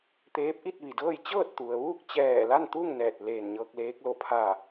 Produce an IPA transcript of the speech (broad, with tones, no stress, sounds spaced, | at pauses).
t̪ eː˧˥ p̚ ʔ i˥˨ t̚ ʋ i˩ d ɤː˥˨ j t͡ɕ ɤː˥˨ t̚ t̪ u˩ ə̯ ʋ uː˥˨ k̚ t͡ɕ ɛː˧˩ l a˥˨ n t̪ u˥˨ ŋ n ɛː˧˩ t̚ l eː˧˩ n ɲ ɤː˧ k̚ l eː˧˥ k̚ l o˧˩ pʰ a˧˩